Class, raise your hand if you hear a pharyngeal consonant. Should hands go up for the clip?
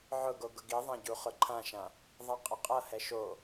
yes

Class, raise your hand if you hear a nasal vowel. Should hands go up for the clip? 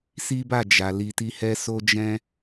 yes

